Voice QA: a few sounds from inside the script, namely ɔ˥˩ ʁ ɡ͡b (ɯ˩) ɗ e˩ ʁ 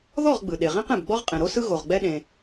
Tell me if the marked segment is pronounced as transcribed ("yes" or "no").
yes